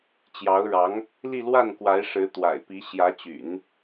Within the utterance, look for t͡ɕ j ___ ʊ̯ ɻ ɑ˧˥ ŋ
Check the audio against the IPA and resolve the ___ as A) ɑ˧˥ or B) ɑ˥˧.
A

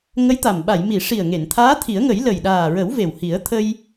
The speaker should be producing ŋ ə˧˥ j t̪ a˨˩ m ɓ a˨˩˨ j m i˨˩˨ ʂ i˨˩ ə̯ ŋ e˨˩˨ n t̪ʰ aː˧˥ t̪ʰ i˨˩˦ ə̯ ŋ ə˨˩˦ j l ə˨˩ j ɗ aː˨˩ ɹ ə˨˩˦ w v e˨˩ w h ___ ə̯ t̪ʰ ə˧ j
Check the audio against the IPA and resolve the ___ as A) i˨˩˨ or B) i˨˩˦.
B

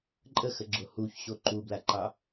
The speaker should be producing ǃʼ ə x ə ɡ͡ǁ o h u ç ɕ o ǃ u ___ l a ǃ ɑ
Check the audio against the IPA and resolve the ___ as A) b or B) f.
A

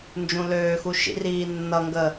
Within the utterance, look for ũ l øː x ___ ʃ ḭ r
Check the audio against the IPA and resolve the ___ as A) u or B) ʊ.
A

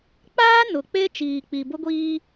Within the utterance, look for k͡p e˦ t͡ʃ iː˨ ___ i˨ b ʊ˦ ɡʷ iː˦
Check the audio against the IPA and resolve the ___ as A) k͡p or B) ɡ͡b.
A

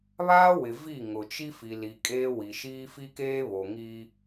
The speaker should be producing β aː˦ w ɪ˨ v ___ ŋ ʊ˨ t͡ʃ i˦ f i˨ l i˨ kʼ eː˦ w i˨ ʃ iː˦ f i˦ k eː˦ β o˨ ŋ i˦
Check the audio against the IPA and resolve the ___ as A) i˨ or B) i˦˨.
B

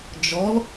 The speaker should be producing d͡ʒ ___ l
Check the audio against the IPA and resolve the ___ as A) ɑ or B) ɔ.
B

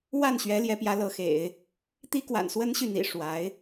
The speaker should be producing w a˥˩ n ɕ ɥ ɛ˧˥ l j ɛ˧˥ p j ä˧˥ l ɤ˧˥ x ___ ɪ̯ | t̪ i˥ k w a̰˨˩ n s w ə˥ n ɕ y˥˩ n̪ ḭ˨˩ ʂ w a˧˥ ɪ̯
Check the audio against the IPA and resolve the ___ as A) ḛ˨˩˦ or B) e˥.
A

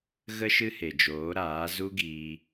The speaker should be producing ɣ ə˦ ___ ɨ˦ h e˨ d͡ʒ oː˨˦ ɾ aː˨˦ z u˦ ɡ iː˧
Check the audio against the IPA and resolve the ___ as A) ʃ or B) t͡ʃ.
A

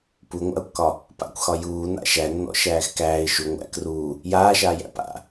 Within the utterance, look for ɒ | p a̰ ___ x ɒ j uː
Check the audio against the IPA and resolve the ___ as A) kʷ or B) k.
A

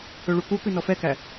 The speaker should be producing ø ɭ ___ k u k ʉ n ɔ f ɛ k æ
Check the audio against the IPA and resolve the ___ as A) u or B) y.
A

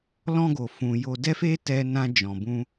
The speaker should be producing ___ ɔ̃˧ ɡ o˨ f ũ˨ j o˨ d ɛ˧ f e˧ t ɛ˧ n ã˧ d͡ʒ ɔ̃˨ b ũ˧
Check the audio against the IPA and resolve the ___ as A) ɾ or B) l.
B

